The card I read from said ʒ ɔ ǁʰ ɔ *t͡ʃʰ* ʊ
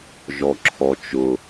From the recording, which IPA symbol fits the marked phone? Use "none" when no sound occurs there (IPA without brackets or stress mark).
t͡ʃ